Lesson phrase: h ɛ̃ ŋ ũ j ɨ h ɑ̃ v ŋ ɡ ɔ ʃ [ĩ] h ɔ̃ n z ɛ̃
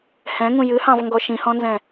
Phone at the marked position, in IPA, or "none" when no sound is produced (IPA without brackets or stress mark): ĩ